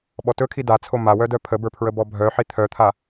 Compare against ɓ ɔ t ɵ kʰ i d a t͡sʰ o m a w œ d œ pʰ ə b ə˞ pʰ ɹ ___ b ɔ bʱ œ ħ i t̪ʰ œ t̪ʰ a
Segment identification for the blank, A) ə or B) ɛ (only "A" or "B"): A